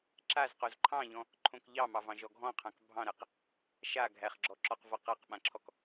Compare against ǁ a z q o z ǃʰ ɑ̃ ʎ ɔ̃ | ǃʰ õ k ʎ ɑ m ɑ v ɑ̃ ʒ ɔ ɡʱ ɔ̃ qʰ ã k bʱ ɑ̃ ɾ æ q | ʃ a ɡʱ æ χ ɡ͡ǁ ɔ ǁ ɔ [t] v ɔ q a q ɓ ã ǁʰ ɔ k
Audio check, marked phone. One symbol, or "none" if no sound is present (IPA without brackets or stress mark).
q